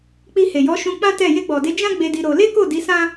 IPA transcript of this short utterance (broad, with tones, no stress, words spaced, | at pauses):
k͡pi˧he˨jɔ˨˦ ʃũ˧ k͡pã˦tɛ˦˨ je˧ɡ͡bɔ˨de˨˦ d͡ʒã˦ ɡ͡be˧di˧ ɾo˧ le˦ko˦˨di˨˦ sã˦